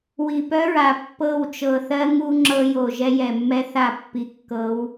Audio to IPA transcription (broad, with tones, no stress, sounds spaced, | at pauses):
w i˨ p œ˦ ɹ a˨ pː ɤ˦˨ w t͡ʃ ɤ˨ θ ɜ˦ ŋ u˦ ŋ͡ǁ ɤ˦ j o˨ ʒ ɛ˦ j ɛ˨ mː ɛ˦ θ a˦˨ pː i˨ kː ɤ˨˦ w